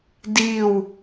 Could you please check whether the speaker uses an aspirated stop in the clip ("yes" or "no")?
no